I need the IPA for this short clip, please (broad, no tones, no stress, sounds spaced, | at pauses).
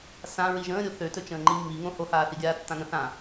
s ã ɹ i ʒ ə̃ː ɾʲ o θ ø t ɵ t͡ʃ ə̃ː ŋ͡ǃ i mː i ŋ õ h o h aː θ i ɡʲ aː tː ã ŋ ə̃ θ ã